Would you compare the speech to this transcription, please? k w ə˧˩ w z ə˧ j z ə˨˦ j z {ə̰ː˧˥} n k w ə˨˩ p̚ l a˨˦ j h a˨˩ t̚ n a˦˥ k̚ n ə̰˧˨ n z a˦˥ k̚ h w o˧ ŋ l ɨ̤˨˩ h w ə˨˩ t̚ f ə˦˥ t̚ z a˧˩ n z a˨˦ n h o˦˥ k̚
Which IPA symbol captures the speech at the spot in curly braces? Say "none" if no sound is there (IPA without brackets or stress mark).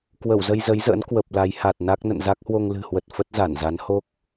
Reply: ə̰ː˧˥